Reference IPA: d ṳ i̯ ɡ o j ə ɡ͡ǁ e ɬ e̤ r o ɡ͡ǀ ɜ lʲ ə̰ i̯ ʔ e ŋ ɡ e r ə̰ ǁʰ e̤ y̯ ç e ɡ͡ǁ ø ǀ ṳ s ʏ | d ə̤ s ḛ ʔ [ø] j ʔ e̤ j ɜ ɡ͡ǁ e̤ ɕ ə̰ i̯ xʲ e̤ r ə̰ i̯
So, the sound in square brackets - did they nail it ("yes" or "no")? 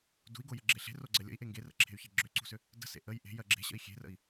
no